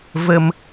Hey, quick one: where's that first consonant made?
lips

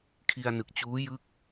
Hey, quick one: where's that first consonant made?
velum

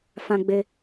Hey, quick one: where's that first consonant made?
lips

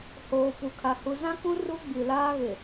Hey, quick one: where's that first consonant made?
throat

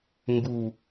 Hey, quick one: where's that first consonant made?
velum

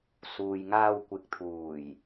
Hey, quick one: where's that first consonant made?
tongue tip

